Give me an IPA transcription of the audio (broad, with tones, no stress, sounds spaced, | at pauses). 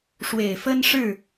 ʂ w e˨˩ ɪ̯ f ə˦ n ʂ ɻ̩˥˨